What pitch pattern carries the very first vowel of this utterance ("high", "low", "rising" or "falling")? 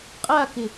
falling